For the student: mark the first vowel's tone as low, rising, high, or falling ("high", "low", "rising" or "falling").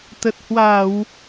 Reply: low